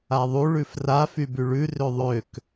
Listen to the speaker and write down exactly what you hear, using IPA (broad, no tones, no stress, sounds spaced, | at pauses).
a ðˤ u ɭ ʉ f r a f y b y ɭ ʉ r ø ðˤ ø k